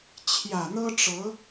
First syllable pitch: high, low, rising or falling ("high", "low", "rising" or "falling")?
low